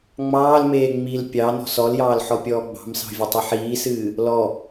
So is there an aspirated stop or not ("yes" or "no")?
no